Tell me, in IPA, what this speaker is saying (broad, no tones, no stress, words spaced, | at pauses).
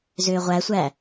zʏːʁʷæsʷæ